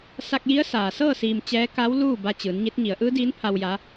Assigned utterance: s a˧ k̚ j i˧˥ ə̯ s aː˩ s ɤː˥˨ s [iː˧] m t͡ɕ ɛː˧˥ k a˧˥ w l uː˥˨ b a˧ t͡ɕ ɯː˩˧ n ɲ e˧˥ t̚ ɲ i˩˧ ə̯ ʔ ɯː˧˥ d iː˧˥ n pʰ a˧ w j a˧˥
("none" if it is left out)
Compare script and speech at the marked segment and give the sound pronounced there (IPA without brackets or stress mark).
iː˧